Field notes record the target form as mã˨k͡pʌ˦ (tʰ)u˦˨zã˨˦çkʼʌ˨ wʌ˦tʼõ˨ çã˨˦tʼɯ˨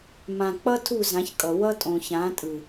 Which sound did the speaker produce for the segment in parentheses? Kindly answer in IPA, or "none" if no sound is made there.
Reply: tʰ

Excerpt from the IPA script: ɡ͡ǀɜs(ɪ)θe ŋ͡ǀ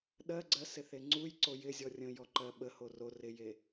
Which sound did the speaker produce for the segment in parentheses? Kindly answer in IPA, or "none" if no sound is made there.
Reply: ɪ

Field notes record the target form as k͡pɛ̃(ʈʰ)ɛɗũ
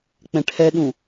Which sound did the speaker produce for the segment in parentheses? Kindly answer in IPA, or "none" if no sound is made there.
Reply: ʈʰ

